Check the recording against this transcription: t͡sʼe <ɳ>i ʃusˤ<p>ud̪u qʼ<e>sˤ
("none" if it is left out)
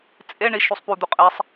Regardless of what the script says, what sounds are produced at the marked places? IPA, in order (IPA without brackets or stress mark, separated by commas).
ɳ, p, e